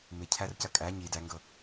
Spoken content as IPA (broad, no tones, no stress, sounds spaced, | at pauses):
m ɪ cʰ æ r c ɐ kʼ æ ɲ i d æ ŋ ɡ ɤ